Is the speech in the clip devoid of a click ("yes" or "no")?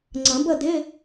no